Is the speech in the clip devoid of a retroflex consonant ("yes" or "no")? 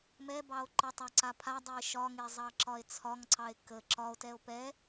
yes